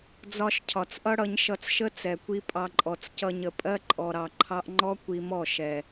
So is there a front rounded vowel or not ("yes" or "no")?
no